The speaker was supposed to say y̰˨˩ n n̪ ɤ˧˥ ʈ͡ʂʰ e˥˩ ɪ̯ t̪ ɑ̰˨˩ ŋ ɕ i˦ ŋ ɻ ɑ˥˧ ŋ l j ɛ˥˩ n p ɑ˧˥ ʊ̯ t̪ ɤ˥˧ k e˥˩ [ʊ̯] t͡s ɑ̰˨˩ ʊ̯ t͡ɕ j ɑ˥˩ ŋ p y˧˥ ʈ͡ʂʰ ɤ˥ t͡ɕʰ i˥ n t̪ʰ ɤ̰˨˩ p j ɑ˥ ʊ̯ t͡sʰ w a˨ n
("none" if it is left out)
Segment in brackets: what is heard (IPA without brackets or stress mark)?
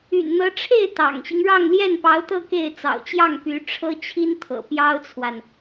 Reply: ɪ̯